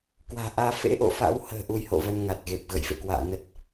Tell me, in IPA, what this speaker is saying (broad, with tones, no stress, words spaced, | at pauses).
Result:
kwa̤ː˨˩ʔaː˧ fḛ˧˥ʔo̰˧˨fa̰˧˥w hə̤ː˨˩ ʔu˧jho̰˧˨və˧n ŋa˨˩t̚ɣe˨˩p̚ ɣə̰˧˨jfḛ˧˨kwa̰ː˧˨nə˦˥t̚